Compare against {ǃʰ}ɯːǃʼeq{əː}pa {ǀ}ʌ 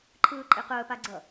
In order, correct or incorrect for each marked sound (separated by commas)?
correct, correct, incorrect